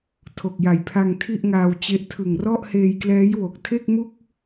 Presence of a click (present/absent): absent